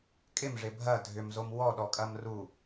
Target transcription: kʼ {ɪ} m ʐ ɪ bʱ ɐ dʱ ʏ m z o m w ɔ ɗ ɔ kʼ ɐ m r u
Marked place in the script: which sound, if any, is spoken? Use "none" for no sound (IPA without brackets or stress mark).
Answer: ɪ